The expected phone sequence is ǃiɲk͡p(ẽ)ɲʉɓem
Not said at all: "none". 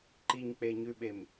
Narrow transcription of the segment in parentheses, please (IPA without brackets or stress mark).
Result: e